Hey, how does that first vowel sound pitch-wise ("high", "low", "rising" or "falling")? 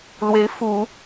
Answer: rising